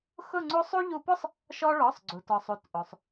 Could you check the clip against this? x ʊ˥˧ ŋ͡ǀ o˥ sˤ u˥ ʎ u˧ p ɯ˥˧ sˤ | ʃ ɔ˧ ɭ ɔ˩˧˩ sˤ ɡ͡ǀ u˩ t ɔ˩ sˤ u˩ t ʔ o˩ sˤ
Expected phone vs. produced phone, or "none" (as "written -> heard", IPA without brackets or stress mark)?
ɯ˥˧ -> ʊ˥˧